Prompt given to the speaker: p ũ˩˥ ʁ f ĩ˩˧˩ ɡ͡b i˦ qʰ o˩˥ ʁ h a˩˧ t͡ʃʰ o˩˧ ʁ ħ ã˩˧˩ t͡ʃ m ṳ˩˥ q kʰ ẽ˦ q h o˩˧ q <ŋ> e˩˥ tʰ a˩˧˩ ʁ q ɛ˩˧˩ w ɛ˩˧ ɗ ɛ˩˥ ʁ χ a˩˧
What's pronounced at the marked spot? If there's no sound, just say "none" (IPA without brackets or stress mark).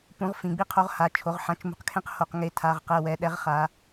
ŋ